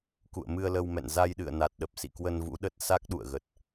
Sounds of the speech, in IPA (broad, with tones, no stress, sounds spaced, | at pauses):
k ṵ˧˨ ə̯ m ɨ˧ ə̯ l ə˧ w m ɛ̰˧˨ n z a˧ j ɗ ɨ̰˧˨ ə̯ n a˨˩ t̚ ɗ ə˨˩ p̚ s ḭ˧˨ k w ə˧ n v ṵ˧˥ ɗ ə˦˥ t̚ s a˦˥ k̚ ɗ ṵ˧˨ ə̯ ɣ ə˨˩ t̚